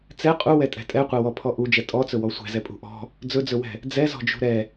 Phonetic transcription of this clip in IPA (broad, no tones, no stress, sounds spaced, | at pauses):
t͡s ɛ qʼ u w ɛ tʼ ɛ̤ tʼ ɛ qʷ ɛ w ɔ pʰ ɔ ʔ u d͡ʒ ɛ tʼ ɔ t͡s ɵ w ɔ sʷ ɛ̤ z ɛ pʼ ṳ ʔ ɔ̤ | d͡z ɵ d͡z ɵ w ɛ̤ | d͡z ɛ z ɔ̤ d͡ʒ ṳ ɾ ɛ